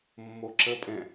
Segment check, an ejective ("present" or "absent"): present